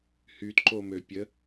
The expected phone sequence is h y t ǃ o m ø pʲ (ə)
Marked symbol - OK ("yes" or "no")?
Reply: yes